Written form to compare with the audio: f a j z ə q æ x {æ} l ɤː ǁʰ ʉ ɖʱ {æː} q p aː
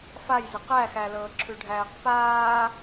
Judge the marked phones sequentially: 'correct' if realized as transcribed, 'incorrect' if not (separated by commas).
correct, correct